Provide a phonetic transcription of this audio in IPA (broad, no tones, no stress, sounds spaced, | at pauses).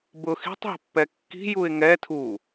b ʊ x i̤ tˤ ɦ ə̤ pː ɛ kː i̤ j u ɪ̯ ŋ ɛ tʰ u